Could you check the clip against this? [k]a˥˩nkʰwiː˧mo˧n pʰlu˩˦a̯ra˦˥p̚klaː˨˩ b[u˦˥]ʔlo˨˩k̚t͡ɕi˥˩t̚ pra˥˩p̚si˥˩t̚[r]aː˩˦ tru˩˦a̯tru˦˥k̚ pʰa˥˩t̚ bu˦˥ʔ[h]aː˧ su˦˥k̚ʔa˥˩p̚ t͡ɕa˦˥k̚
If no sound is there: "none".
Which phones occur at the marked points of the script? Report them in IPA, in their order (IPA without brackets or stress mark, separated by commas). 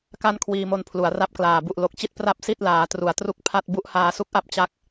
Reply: k, u˨˩, l, h